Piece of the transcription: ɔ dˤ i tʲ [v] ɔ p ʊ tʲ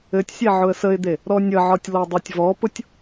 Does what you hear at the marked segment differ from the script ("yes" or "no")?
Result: no